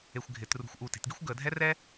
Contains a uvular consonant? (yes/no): no